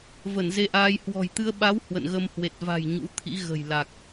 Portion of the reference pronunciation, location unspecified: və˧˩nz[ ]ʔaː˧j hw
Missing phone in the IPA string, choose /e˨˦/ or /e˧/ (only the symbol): e˧